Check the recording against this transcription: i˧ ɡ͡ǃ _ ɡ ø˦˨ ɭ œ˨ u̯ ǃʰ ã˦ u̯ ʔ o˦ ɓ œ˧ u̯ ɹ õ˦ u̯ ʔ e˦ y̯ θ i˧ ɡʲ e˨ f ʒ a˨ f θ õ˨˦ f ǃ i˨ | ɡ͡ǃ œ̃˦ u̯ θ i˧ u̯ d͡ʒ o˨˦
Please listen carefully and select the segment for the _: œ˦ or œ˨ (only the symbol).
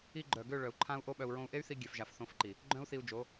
œ˨